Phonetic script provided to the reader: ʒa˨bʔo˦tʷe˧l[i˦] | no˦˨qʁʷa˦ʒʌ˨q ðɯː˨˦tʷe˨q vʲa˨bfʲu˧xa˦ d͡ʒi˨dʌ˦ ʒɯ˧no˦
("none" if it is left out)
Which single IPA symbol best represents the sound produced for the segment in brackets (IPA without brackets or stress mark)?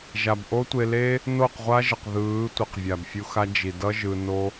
e˦